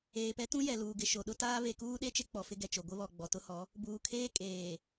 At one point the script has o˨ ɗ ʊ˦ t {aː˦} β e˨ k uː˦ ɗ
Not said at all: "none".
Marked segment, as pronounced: aː˦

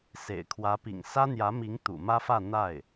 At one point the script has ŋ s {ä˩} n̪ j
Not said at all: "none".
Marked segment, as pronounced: ä˥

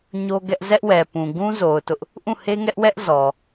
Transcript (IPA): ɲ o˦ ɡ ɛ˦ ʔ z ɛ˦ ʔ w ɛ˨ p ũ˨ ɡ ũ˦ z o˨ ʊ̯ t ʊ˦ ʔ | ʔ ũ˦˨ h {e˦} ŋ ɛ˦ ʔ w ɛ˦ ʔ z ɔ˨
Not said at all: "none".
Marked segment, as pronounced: e˦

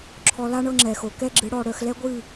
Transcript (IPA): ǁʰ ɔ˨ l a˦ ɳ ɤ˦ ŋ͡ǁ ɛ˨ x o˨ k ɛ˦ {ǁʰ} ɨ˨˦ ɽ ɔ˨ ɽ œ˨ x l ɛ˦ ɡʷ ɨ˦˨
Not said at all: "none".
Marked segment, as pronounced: ɡ͡ǁ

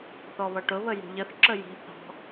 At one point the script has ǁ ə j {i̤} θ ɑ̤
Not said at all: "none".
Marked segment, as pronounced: i̤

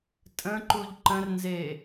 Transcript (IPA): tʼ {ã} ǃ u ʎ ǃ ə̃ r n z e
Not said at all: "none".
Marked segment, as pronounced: ə̃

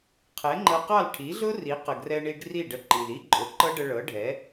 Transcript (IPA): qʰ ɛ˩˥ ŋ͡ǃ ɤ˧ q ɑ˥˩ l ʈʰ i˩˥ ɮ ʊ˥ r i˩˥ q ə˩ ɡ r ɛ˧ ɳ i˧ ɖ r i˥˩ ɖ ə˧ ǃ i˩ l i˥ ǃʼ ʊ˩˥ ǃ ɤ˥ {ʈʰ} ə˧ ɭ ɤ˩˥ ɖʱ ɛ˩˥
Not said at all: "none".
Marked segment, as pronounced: ɖ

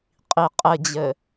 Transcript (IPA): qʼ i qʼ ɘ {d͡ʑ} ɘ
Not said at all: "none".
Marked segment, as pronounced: d͡ʑ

